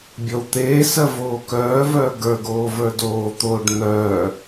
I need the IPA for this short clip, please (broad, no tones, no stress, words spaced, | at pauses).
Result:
bʲɔwt̪eːsɜ voːkœːvœː ɡə˞ɡoː və˞doːt̪oːɖ n̪œː